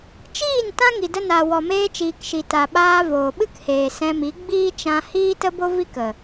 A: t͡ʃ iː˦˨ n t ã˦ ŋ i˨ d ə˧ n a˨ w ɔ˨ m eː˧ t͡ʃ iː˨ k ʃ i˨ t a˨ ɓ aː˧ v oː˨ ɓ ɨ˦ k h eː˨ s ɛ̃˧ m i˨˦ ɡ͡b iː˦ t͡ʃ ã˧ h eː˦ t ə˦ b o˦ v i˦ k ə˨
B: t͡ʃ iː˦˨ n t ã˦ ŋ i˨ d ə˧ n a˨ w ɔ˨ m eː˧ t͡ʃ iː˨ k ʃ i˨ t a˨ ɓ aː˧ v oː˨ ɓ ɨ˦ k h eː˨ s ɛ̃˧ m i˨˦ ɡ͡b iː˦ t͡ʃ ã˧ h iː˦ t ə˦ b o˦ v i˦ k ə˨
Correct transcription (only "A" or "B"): B